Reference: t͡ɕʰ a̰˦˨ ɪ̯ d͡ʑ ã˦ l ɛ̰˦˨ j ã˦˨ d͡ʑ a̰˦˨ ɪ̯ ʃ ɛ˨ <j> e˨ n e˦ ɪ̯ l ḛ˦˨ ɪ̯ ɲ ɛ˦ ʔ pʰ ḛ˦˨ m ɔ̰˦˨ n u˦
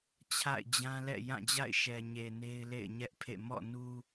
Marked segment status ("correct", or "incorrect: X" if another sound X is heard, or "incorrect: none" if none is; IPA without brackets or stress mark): incorrect: ɲ